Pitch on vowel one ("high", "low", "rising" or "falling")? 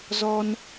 high